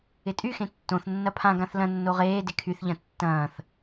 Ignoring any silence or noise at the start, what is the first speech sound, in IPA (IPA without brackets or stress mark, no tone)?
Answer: ɪ